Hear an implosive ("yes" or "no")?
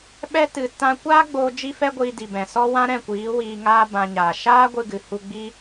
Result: yes